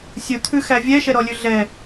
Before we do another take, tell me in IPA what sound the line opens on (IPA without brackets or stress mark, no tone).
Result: sʲ